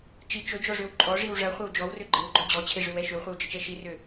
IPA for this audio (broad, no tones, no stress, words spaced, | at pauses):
t͡ʃi t͡ʃɵd͡ʒɔʐøw ǃʼɔʐiw ʐɐχʷɐw d͡ʒɔwrø ɡ͡ǃewɡ͡ǃɔ d͡ʑɔt͡ɕʰeʐøwɛ ʃøwχʷɛwd͡ʒət͡ʃɛ ʃirø